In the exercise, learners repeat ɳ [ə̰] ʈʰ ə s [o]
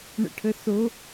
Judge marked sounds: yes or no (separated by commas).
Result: yes, yes